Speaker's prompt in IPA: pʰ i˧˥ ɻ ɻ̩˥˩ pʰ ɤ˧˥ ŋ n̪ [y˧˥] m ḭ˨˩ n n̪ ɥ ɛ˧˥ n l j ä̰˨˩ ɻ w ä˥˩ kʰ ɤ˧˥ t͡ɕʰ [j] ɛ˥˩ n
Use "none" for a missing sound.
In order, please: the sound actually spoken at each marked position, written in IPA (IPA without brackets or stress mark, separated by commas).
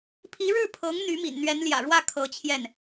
y˧˥, j